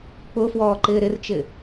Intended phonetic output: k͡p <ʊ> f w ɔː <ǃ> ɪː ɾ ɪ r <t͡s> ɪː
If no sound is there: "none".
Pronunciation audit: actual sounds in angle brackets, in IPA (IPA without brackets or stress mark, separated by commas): ʊ, ǃ, t͡ʃ